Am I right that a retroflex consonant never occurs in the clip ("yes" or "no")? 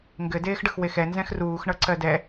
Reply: no